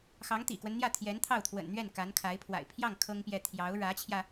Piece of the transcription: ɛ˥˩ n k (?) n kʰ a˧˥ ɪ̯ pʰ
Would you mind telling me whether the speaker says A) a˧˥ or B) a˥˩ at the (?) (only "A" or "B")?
A